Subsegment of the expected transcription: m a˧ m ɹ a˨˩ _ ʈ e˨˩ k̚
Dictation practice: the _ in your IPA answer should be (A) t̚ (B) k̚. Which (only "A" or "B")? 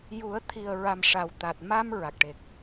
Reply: B